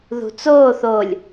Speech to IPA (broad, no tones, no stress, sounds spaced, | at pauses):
ð ṳ t͡s oː θ o lʲ